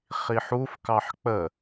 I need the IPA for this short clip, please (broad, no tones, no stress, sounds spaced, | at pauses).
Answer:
χ i ħ u f k ɑ ħ k͡p ə